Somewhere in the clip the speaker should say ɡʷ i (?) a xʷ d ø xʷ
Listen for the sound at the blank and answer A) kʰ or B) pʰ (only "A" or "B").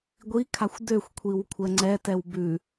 A